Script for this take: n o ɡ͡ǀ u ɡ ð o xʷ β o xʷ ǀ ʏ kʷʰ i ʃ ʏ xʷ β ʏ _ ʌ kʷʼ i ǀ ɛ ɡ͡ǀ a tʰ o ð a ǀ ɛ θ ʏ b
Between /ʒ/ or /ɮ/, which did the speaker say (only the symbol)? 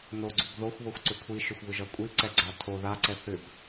ʒ